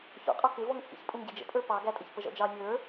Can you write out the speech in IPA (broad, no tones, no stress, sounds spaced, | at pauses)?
ç ɔ̰ qʼ ɔ k ɪ v ɔ ŋ t͡sʼ ḭ ç pʼ u ŋ ɟ i d͡ʒ ə̰ pʼ ə˞ p ɑ ɡ æ tʼ ə ç p ə ʒ ɔ̰ d͡ʒ ɑ nʲ ə˞